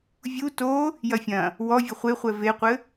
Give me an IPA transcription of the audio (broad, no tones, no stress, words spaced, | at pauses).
vʲu to | jɐfʲɐ̃ | wɔvʲɘ χʷeχʷɛ veqʷɘ